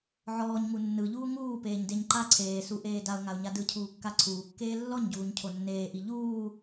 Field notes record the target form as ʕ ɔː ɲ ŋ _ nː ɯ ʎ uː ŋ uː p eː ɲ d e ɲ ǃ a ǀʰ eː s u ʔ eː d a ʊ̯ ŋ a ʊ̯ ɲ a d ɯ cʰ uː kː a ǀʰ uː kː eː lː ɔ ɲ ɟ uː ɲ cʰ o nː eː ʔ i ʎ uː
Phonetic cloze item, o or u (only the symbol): u